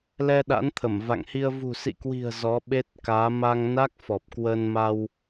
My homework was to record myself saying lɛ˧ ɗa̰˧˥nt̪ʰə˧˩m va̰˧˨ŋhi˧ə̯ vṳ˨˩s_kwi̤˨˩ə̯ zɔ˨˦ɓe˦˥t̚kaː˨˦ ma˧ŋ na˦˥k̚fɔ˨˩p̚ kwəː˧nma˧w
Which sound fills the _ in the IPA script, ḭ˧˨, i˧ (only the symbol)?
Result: ḭ˧˨